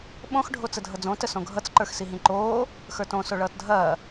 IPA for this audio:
ɓ õ x ɖʱ o t͡s ə dʱ ʌ d͡z õ t ə s õ ɡʱ ʌ t͡s ǃ ə˞ x s i ɦ ĩ ǃ oː | x ə˞ t õ s o ɭ ʌː t dʱ ɐː

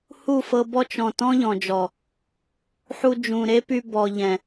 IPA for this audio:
h u˦˨ f ɤ˧ b ɔ˦ t͡ʃ ɔ̃˨ t ɔ̃˦ ʎ ɔ̃˨ d͡ʒ ɔ˨ | ħ u˧ d͡ʒ ũ˨ ɾ e˦ p y˧ b ɔ˨ ʎ ɛ̃˨

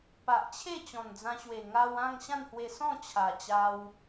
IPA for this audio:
p a˨ ʔ t͡ɕʰ e˥˧ t͡ɕ ɔ̃˨˩ n d͡z ã˧ ɕ w e˨˩ ŋ a˧ w ã˥˧ ŋ ɕ ã˥˧ n h w e˧ s ɔ̃˥˧ t͡ɕʰ a˨˩ t͡ɕ a˧ w

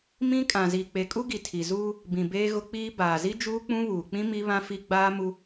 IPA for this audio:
m ĩ˦ kʼ ã˨ z i˨ k͡p e˨ kʼ u˦ ɡ i˨ tʰ i˨ z uː˦ | b ĩ˨ b eː˦ ɣ ʊ˦ k͡p iː˦ b aː˨ z i˦ d͡ʒ uː˦ k͡p ũ˦ β uː˨ k͡p ĩ˦ m i˦ β ã˦ f i˦ ɡ͡b aː˦ m u˦

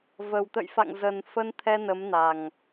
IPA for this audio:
v ə˨˩ w t̪ ə̰˧˨ j f a̰˧˨ ŋ z ə˨˩ n f ə˧ n t̪ʰ ɛ˧ n ə˨˦ m n a˨˩ ŋ

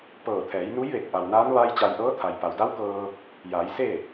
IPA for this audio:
p ɤː˧˩ t̪ʰ ɛː˩˧ j n u˧˥ j ʋ e˧˩ t̚ ʔ a˩ w n aː˧˥ n ʋ a˧ j t͡ɕ a˧ j ʔ ɤː˧˥ t̪ʰ a˩ j p a˩ w d a˧˥ w k ɤː˧ | j aː˩˧ j s e˥˨

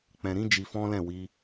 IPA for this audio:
k͡p ɛ̃˨ ɾ ĩ˨˦ d͡ʒ i˧ f ɔ̃˦ l ɛ̃˦˨ w i˧

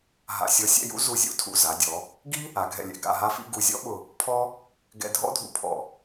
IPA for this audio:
ɦ a̰˧˩ sʲ ɔ˧ sʲ ɛ̰˥˧ j ṵ˥ z u˧˩ zʲ ṵ˥˧ tʰ ṵ˧˩ z a˩˧ dʲ ɔ˩˧ | ɡ i˥ | a˩˧ ɡʱ ɛ̰˧˩ lʲ ɛ̰˧˩ ɡ a̰˧˩ ɦ a˧ f ḭ˧ ɡ u˧˩ zʲ ɔ̰˥ ɓ ʊ˧˩ | pʰ ɔ˥ | ɡ ɛ̰˧ dʱ ɔ̰˥ dʱ ṵ˧ pʰ ɔ̰˧˩

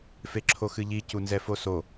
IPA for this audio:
f e ǁʰ o x ɨ ʎ i c u n z ɛ f o s o

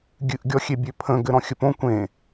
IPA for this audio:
ɡʲ ɨ ʔ ɡʲ ɔ xʲ e bʲ ø pʰ ə̃ ɡ ɘ ɾ ɔ̃ xʲ ə p õ kʷ ẽ

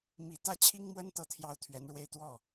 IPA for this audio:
m i˨˩ t̪ ä˥˩ t͡ɕʰ i˥ ŋ m w ə˥ n t̪ ɤ˥˧ t̪ʰ j ɑ˥˩ ʊ̯ t̪ʰ ɥ ɛ˧˥ n ɻ w e˥˧ ɪ̯ t̪ w ɔ˥˩

